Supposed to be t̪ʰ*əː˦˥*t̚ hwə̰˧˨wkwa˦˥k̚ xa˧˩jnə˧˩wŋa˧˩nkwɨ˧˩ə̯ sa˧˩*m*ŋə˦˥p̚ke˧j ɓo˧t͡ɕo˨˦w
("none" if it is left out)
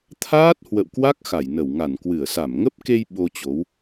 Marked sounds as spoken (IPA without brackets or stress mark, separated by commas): aː˦˥, m